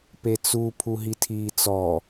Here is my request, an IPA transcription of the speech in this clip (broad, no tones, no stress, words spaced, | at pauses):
pet͡su pʰuɦitʰiːt͡sɔ